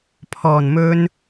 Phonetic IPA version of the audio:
pʰ ɔː˨˩ n m ɵ˨ n

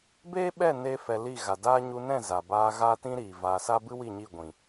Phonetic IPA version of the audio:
b eː˦ ɓ ɛ˦˨ n e˦ f ɛ˧ l i˦˨ ɣ a˨ d aː˦ ɲ u˧ n ɛ̃˦˨ z a˨ b aː˧ ɣ aː˦ t ĩ˦ ɾ iː˨ v aː˧ s a˦ b ɨ˦ w i˦˨ ɲ i˦˨ ɡʷ ĩ˨

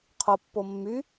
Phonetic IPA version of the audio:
qʰ o pː o mː y

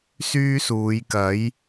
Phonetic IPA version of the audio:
s yː˥ s uː˨˧ j k ɐ˨˥ j

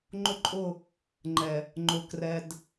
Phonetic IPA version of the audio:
ŋ͡ǃ ʊ˦ ǃʼ ʊ˦˨ | ŋ͡ǃ ɛ˨ | ŋ͡ǃ ʊ˨ k r ɛ˨ d

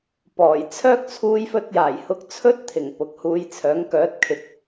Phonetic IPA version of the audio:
p ɔː˨˩ j t͡sʰ œː˥ k̚ t͡sʰ uː˧ j f ɵ˧ t̚ j aː˨˩ j h ʊ˧ k̚ t͡sʰ ɵ˥ t̚ t̪ʰ ɪ˨˩ ŋ p ʊ˨ k̚ h uː˧ j t͡sʰ œː˨˥ ŋ k œː˨˥ t̚ kʰ ɪ˨˥ k̚

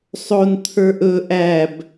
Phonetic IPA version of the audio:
sˤ o n t̪ʰ ə˞ ʔ ɵ ʔ æ b

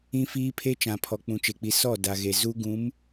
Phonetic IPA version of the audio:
ĩ˦ f iː˦ pʰ e˦ t͡ʃ ã˨ pʰ ɔ˨ k͡p ũ˨ t͡ʃ e˨ k͡p i˨ s ɔ˦˨ d a˨ ɣ e˨ z u˦ ɡ ũ˨˦ m

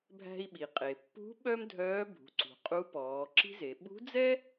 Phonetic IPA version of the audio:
bʱ æ̤˧ i̯ ɓ i˩ qʼ e˩ pː ṳ˧˥ ɓ œ˥ m dʱ œː˧˥ bʱ ṳ˩˧ ǀ ṳ˩ qʼ u˧˥ p ɔː˩˧ ǁ i̤˥ z e˩˧ ɓ ṳ˧˥ d͡z ɛ˥

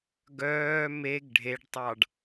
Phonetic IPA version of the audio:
ɡ œː m e ɡ ɖʱ e ɖ tˤ ɑ ɖ

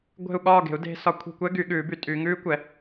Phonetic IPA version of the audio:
ɡʷ e̤˦˨ u̯ ɠ ɒː˦˨ ɡ e̤˨˩˦ u̯ d e̤˨˦ s ɒ˨˦ kʷʰ i̤˦˨ kʷ ɛ˦˥ ɡ y˨˩˦ ɠ ʉː˨˩˦ b y˨˩˦ tʼ y˨˦ ŋ ʉː˦˥ kʷ ɛ˨˩˦

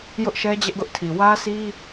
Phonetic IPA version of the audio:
j ʊ˦ ʔ ʃ ɛ˦ d͡ʑ ɛ˦ ʔ ɡ ʊ˦ ʔ tʰ i˨ w ä˦ sʰ i˦

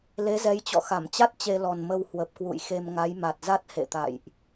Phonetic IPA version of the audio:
l e˨˦ z ɛ˨˦ j t͡ɕ ɔ̰˧˨ x a˧˩ m t͡ɕ a˦˥ t̚ t͡ɕ e˧ l ɔ˨˩ n m ə˧ w h w ə˨˩ p̚ k w ṵ˧˨ j x e˧ m ŋ a˨˦ j m a˨˩ t̚ z a˦˥ t̚ h ḛ˧˨ t̪ a̰˧˨ j ʔ

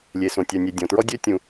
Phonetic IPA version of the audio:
lʲ e˩ s õ˩ tʲ œ˩ nʲ e˩ dʲ ɔ̃˩ t ɹ ɔ˥ dʲ ø˥ tʲ ũ˩

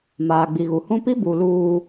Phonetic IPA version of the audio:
m aː˨ ɡ͡b i˨ ɣ u˨ h ũ˦ p i˦ b u˨ l uː˨

